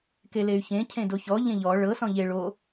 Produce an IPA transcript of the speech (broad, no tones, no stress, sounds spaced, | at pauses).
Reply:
k e l e y̯ ç ẽ cʰ ẽ d o ç ɔ ʎ ẽ ʎ ɔ ɭ ɤ s ɔ̃ ʎ e ɭ o